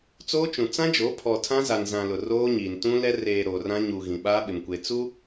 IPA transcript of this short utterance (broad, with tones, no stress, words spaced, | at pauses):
t͡soː˦t͡ʃũ˨ t͡sã˦d͡ʒo˨˦ pʰɔ˨ tʰã˦za˨nzã˨ lʊ˨roː˦ɲiː˨n tũ˦lɛ˦ reː˨ ɾoː˨rã˦ ɲuː˨ ɣĩ˨ɓaː˦ɓɪ˨mkʷe˨ t͡su˦